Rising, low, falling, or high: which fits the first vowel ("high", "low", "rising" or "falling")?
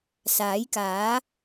rising